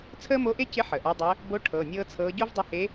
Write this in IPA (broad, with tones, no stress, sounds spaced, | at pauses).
t͡sʰ əː˥ m o˧˥ ʔ e˥ c ɪ˧˥ ħ əː˩ ʔ a˧˥ dˤ əː˧˥ | b o˧˥ ʈʰ ɤ˩˧˩ nʲ ɤː˥ t͡sʰ ɤː˧˥ ɟ o˥ v dˤ ɪ˧˥ h e˧˥